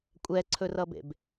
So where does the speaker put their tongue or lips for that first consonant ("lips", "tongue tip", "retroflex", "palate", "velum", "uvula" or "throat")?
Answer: velum